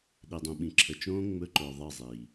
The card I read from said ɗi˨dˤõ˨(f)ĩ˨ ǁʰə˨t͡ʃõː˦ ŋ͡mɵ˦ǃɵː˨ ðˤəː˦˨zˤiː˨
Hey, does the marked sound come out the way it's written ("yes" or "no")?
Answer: no